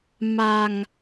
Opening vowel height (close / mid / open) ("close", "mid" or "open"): open